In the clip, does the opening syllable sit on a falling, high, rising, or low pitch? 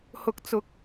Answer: rising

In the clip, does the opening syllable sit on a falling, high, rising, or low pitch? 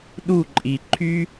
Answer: falling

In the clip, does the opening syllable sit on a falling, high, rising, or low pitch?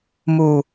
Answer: low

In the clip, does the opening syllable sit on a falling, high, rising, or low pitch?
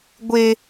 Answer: high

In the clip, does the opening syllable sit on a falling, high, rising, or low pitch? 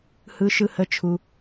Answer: low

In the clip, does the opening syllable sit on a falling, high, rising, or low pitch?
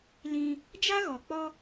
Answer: high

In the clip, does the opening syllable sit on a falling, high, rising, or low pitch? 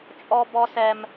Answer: high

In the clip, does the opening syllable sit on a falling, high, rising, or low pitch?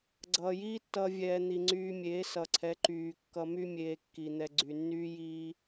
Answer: low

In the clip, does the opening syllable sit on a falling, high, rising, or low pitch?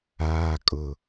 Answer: low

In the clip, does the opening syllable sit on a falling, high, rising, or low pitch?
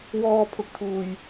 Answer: high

